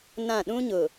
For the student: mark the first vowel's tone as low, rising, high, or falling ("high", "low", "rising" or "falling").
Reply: falling